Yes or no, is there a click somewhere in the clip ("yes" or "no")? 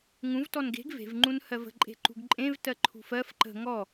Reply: yes